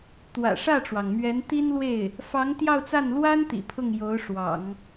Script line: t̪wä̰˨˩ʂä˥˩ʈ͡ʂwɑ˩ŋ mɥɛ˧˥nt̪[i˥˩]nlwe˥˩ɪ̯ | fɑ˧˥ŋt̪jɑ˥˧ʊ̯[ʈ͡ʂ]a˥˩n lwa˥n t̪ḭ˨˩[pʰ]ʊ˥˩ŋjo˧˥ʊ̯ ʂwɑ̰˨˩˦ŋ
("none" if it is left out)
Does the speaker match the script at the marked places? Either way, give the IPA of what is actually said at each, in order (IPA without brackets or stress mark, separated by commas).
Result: i˥, t͡s, pʰ